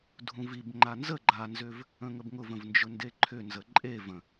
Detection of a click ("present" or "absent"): present